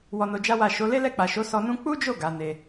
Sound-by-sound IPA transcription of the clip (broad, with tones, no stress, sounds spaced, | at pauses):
w ɔ˧ n o˧ d͡ʒ a˦ w a˦˨ ʃ o˨˦ l e˦ l ɛ˦˨ k͡p a˨ ʃ o˨˦ s ɔ˦ n ũ˦ k͡p u˦ d͡ʒ o˦˨ ɡ a˨˦ n e˧